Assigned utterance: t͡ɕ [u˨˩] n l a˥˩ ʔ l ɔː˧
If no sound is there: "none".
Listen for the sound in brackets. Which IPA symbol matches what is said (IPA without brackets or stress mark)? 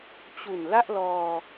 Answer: u˨˩